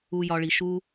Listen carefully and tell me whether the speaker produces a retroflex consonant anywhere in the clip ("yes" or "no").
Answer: yes